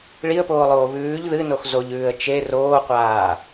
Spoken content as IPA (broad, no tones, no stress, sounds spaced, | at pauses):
ɭ i ə̯ p oː lˠ oː β ʉː ʎ ð ɨ n o x z o ʎ ʉː ə̯ t͡ʃ e r oː qʷ aː